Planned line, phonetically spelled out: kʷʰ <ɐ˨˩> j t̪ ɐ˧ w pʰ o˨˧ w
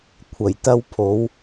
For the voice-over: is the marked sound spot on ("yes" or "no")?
yes